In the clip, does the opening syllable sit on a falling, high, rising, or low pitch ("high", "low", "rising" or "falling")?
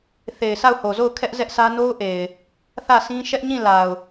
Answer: low